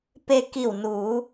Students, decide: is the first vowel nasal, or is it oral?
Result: oral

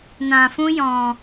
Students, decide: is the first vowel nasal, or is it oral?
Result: nasal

